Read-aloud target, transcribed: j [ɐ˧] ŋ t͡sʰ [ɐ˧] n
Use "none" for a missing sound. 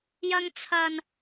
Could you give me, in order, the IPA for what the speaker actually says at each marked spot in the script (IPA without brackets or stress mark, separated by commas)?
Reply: ɐ˥, ɐ˧